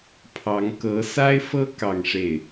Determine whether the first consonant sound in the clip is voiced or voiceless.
voiceless